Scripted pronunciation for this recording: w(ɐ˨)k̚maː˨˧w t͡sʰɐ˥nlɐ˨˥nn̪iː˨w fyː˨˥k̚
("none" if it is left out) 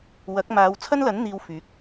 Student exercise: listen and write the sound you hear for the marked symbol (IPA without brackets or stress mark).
ɐ˨˥